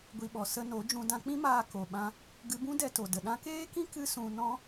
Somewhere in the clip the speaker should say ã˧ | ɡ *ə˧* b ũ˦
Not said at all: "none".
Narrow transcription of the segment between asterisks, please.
ɨ˧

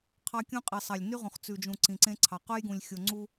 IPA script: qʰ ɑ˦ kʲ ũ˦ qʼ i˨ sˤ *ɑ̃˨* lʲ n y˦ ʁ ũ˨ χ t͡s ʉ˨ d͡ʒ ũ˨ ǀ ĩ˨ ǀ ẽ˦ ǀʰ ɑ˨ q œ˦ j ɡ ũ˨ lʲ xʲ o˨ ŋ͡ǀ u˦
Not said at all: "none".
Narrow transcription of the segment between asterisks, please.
ɑ˨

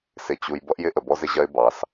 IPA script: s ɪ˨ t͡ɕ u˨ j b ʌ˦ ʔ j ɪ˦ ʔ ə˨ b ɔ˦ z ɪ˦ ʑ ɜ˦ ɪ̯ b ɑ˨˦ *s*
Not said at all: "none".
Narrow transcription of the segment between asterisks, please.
s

